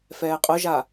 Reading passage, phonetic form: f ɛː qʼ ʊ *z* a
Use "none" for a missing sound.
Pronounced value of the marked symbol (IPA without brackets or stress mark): ʒ